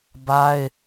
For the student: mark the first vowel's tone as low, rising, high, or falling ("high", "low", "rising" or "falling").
high